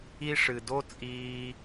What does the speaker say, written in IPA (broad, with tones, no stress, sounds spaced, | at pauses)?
i˦ ʂ ɨ˨ d o˥ t͡sʼ iː˦